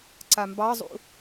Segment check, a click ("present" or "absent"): present